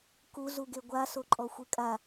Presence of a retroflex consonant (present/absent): absent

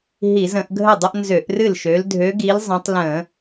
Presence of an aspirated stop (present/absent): absent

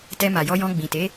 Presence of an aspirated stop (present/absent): absent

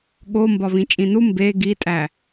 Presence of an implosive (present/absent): present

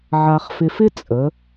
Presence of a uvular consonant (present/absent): present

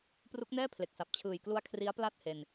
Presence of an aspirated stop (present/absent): present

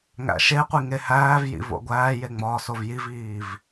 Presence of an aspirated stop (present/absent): absent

